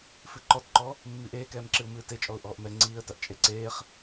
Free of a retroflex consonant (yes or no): yes